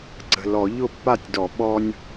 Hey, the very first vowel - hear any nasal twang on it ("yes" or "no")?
no